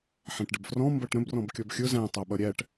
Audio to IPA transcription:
ħɛ̃ʈɖəbfrɔ̃ mbʌʈɾə̃b rɔ̃bkʲɔbxʲʊ zæ̃ tˤæɓʌɾʲæʈ

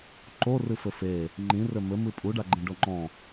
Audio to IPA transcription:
ǃorɨfɘ fe | ŋ͡ǃĩrɘ mɘmɨ pʼuɖaɡ͡ǃẽɖo ŋ͡ǃɔ̃

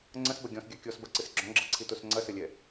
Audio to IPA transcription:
ŋ͡ǀɐ̃sbɐ ɡʲɔ̃sɡʲa kʲɔsbɐǀɨs ɡ͡ǁɔ̃ɡ͡ǁɐǀʰitos ŋ͡ǀɐsɘlʲɛ

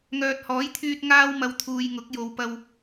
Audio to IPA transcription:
ŋœː˨t̚hɔː˨˥jt̪ʰyː˧t̚ ŋaː˥wmɐ˧wt̪ʰuː˨jŋʊ˨˥k̚ jo˨w pɐ˧w

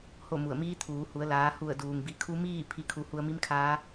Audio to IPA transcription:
ho˥˨mu˧˩ə̯ miː˧˥ t̪ʰuː˩˧hu˩˧ə̯ laː˩˧hu˧˩ə̯ duː˩ŋbi˧˩kʰu˧˥ miː˥˨ pʰi˩˧kʰu˩ hu˧ə̯mi˧˥mkʰaː˧˥

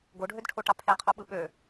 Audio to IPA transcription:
ɡoɖʱødʈʰo ʈɑpʰeqʰo ɓɯɓø

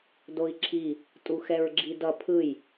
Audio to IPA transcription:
doi̯ǁʰi | tʼuxɛɹɡ͡ǁidʌ pʰɯj

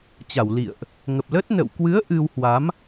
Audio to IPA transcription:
t͡ɕa˧˩wlḭ˧˨ə̯ʔ | ŋə˨˩p̚lə˦˥t̚ nə̰˧˨wkwɨ˨˦ə̯ ʔɨ˧whwa˨˦m

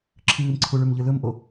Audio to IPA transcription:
ǁʰɨːmǀʰuɭʉmʎɨ lɵmʔo

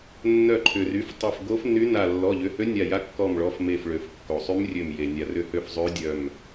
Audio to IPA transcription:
nːœ˧˩ǃʰʏ˩ry˩˧˩ftˤe˧˩f ɡo˧˥fny˧˥ na˧˩ lːɔ˩˧˩ʎʏ˩˧˩hø˧˥ nʲa˧˩ja˧˥ kːɔ˧˩mɭɔ˩˧˩f me˧˩fɭø˩fkːo˩ sˤy˧˥mrʲø˧˩mje˩ nʲa˩rʏ˧˩hø˧˩f zˤø˧˥dʲœ˧˩m

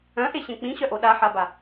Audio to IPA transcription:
œ̃ʔeɕẽ k͡pĩɕœʔo ɗaħaba

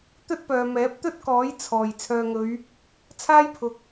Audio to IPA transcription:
t̪ɵ˥t̚pœː˨ mɛː˨˥p̚t̪ɵ˥t̚kɔː˨˥j t͡sʰɔː˨˩j t͡sʰœː˨ŋɵ˨˧ɥ | t͡sʰaː˥jpʰʊ˨k̚

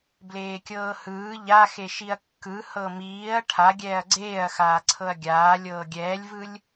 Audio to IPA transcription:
bleːkʲɤːhɯː ʎaxe ʃiɐ̯kːɯ hɤmiːɐ̯ ʈʰa ɡʲɛːɐ̯ɡ͡ǀeːɐ̯xaː ǀʰɤɐ̯ɡʲaː lʲɤːɡʲɛːlʲvɯlʲ

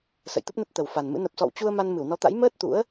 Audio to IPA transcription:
sə̰˧˨jt̪ə˦˥p̚nə˦˥t̚ t̪ə˨˩wfa˨˩nmɨ̰˧˥ nə˨˩p̚sɔ̰˧˨wt͡ɕu˧ə̯ ma˧nmɨ˧˩wnɔ˨˦t̪a̰˧˥j məː˦˥t̚ t̪ṵ˧˥ə̯

